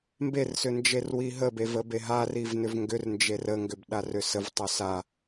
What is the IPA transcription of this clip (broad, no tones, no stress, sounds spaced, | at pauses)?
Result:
m b e r s ʏ n d͡ʒ e r w i ɦ ə b e v ə b e ɦ a r i v n ʏ v ŋ ɡ ʏ r n d͡ʒ e r ə ŋ ɡ ʏ b ɗ a r ʏ s ə v tˤ ʏ s a